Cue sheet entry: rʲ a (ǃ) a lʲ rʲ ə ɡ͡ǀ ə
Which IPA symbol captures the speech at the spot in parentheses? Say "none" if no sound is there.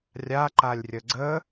ǃ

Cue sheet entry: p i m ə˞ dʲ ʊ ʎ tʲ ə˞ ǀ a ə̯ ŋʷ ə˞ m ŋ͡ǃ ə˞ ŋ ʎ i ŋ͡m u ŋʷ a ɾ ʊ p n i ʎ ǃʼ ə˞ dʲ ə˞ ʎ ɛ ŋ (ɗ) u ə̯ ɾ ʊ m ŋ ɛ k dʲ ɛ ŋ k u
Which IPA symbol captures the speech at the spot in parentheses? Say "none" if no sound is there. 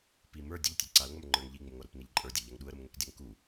ɗ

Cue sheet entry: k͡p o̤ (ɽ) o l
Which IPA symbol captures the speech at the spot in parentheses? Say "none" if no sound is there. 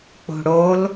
ɽ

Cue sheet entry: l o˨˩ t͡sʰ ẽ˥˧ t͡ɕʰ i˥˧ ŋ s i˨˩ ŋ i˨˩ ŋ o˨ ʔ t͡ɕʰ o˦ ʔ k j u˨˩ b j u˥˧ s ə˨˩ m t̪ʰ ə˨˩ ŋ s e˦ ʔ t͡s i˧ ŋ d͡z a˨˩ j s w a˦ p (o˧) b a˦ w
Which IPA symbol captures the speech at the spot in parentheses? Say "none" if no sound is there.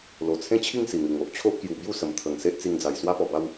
ɔ˧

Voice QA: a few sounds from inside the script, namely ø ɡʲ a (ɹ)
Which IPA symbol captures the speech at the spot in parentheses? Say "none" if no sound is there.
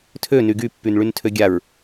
ɹ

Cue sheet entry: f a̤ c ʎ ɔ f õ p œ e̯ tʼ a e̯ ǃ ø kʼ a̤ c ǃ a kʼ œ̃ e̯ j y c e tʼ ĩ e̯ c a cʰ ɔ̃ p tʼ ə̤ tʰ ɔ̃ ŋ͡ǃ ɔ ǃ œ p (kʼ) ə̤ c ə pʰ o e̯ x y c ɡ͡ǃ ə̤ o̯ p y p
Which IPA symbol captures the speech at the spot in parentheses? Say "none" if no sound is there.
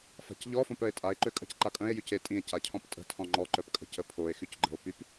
kʼ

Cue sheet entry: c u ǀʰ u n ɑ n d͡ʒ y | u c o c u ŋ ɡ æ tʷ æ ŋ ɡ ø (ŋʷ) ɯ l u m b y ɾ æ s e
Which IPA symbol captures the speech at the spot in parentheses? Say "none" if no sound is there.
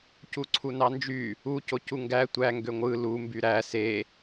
ŋʷ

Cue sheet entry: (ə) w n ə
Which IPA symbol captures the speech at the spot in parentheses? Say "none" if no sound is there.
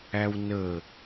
æ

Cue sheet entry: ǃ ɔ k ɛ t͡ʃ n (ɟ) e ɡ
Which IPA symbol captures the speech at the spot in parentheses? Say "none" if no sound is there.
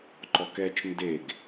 d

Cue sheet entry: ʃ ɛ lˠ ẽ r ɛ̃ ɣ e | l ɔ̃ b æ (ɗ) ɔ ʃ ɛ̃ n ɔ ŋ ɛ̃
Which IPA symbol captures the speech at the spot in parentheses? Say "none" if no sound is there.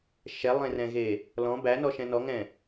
n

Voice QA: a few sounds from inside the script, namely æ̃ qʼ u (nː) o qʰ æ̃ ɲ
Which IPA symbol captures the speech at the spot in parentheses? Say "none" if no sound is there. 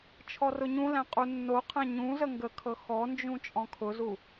nː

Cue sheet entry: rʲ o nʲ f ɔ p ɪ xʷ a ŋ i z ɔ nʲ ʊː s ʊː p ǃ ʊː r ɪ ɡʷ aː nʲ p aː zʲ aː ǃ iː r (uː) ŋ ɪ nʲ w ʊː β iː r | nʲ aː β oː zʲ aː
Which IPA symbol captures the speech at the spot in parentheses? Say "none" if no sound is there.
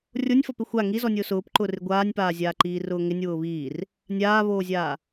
ʊː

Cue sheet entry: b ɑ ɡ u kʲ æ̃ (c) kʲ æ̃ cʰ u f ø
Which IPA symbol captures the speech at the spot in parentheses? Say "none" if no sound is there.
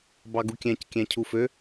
c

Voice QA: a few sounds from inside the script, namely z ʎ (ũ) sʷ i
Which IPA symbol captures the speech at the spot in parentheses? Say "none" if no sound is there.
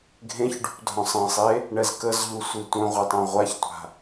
u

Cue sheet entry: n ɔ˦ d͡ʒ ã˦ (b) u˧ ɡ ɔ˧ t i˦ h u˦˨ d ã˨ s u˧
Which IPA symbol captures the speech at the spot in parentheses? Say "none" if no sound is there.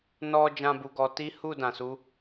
b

